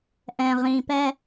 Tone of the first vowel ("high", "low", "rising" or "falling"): low